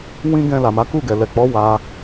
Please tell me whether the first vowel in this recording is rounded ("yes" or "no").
no